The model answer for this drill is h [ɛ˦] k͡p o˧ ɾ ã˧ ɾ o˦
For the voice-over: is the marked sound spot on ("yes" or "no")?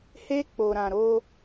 no